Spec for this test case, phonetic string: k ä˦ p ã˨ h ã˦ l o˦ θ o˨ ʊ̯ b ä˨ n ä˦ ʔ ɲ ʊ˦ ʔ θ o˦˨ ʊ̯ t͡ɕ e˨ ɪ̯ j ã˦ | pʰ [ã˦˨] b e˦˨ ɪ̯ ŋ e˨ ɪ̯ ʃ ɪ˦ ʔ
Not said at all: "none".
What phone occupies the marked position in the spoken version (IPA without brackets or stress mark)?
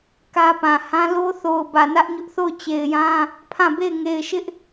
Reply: ã˦˨